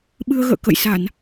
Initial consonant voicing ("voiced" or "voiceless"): voiced